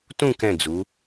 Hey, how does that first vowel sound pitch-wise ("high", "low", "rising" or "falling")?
falling